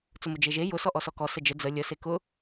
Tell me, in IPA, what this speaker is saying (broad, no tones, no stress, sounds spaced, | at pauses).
t͡s ʊ m ʊ d͡ʒ e ʒ e j ʊ s ɔ ʔ ɔ s ɔ k ɔ s ə d͡ʒ ə d͡z ə lʲ ə s e k ʊ